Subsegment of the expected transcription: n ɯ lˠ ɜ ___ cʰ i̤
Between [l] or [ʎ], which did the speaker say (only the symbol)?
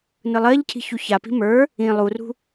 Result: ʎ